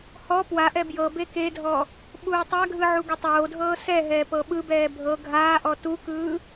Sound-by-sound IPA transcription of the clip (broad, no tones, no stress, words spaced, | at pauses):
hɔ pwaʔɛ bjɤ bekedʱɔ | ɓuːtˤaɡʱɯ ʕuɡɯtˤoːdʱɤː sɛɦɛː pɤɓɯbɛː bʱɤ ɡʱaːʔɔ tukɯː